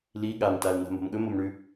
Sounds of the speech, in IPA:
l i ɠ a m t a l n a̤ m o̤ m ɠ ɵ m o m ɳ ʉ

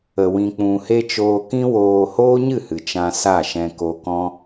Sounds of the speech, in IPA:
ə˨ w ĩ˨ k͡p ũ˨ h e˦ t͡ʃ oː˧ k ĩ˦ w oː˧ h oː˦ ɲ ɨ˦˨ h ɨ˨ t͡ʃ ã˧ s a˦˨ ʃ ɛ̃˧ k o˧ k ɔ̃˦

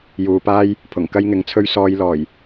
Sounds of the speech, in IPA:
j uː˨ p aː˥ j | pʰ ʊ˨˩ ŋ k ɐ˥ j ŋ ɪ˨˥ ŋ t͡sʰ ɵ˥ ɥ s ɔː˧ j l ɔː˨˩ j

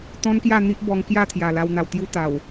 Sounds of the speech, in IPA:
t̪ ɔ̃˦ n k j a˥˧ n̪ i˦ ʔ b ɔ˧ ŋ k j a˥˧ t̪ʰ j a˨˩ l a˧ w n̪ a˨˩ w t̪ j u˦ t̪ a˨˩ w

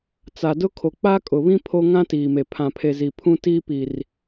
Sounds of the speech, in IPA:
t͡s a˨ d ʊ˦ kʰ o˨ k͡p a˦ kʼ ʊ˨ β ĩ˦ pʰ o˦ ŋ ã˦ t iː˨ m e˨ pʰ ã˨ pʰ e˨ z i˨ pʰ ũ˦ t iː˦ p i˨ r

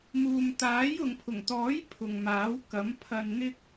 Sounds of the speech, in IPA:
m uː˨ m t̪ aː˨˥ j ʊ˨ ŋ pʰ ʊ˨˩ ŋ t̪ ɔː˨˥ j pʰ ʊ˨ ŋ m aː˨˥ w k ɐ˨˥ m pʰ ɐ˧ n n̪ ɪ˥ k̚

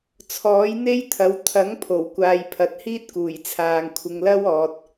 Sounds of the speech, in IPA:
t͡sʰ ɔː˨˥ j n̪ e˥ j t̪ʰ ɐ˨˥ w t̪ʰ ɐ˨˥ ŋ pʰ o˨˩ w kʷ aː˨ j pʰ ɐ˨˥ t̚ h iː˥ t̚ k uː˨˩ j t͡sʰ aː˨ ŋ kʷʰ ɪ˨ ŋ l ɐ˥ w ɔː˨ t̚

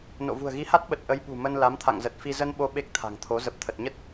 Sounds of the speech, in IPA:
n o̰˧˨ v ṳ˨˩ ə̯ ɣ i˨˦ h a˦˥ t̚ ɓ ə˨˩ t̚ ʔ ə˨˦ j ɓ ṳ˨˩ m ə˧ n l a˨˦ m t̪ʰ a̰˧˨ ŋ z ə˨˩ t̚ f i˧ z ə˧ n ɓ o˨˦ ɓ e˦˥ k̚ t̪ʰ a̤˨˩ ŋ t̪ʰ o˨˦ z ə˨˩ p̚ t̪ʰ ə˨˩ t̚ ɲ ə˦˥ t̚

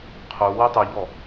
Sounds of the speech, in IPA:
qʰ u w y tˤ ʉ ʎ ɔ

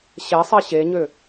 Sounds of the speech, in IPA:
ɕ ɛ sˤ e ɕ e ɲ ø

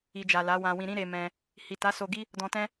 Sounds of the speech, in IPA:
i˨ d͡ʒ a˨ l a˨˦ w ã˧ w ĩ˧ ɾ ĩ˦ ɾ e˧ m ɛ̃˧ | h i˨ t a˨˦ s o˧ ɡ i˦ | d ɔ̃˧ t ɛ̃˦

